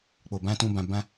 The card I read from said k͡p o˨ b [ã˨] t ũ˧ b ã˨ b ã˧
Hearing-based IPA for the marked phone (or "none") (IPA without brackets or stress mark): ã˧